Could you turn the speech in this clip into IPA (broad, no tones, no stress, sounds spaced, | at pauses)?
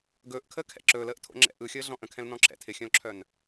ɡ ɵː ʔ kʰ əː kʰ ɛ̰ ǁ ɵː l əː ʔ tʰ o̰ ŋ͡ǁ ɛ̰ ʔ ɯ xʲ əː ɮ ɔ̃ ʔ ə̃ kʰ ɛ̃ l n ɔ̃ ǁʰ ɛ̰ tʰ ɪ xʲ œ̃ l ǁʰ œ n